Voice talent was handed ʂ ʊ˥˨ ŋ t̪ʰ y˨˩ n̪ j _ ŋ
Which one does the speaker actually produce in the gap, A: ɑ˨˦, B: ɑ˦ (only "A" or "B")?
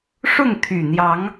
A